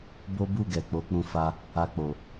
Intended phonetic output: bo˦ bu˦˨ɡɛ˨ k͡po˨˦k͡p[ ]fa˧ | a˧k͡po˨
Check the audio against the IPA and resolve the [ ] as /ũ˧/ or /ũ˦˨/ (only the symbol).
ũ˧